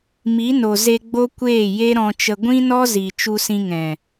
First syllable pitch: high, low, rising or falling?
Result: rising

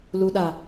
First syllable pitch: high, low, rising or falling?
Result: low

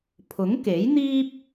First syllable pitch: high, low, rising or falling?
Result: rising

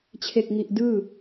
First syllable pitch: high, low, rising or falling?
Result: low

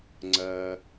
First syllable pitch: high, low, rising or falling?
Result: low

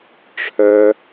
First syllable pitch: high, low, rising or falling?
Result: high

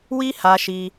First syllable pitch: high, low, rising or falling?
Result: high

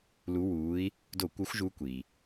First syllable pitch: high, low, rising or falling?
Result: rising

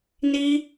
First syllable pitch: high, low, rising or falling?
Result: high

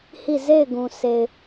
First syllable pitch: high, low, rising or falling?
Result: falling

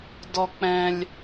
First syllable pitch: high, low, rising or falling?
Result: low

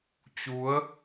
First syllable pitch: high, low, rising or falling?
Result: rising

